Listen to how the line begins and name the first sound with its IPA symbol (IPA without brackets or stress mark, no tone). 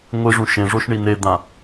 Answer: ŋʷ